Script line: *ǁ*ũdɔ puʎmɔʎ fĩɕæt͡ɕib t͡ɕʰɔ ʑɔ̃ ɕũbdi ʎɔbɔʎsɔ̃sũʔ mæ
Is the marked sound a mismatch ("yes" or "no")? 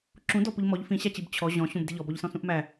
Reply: no